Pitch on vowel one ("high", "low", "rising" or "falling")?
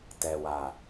low